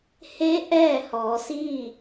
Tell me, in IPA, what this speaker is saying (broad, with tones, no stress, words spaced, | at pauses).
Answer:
he˧˥ ʔɛː˥˨hɔː˩˧siː˥˨